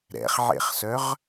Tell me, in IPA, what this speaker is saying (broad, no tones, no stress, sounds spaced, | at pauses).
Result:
ɾ ɛ̰ χ ʕ ḛ χ s œ ʁ